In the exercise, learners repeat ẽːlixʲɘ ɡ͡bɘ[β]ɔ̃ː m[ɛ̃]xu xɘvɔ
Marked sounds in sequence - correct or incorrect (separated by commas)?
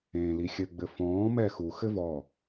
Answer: incorrect, incorrect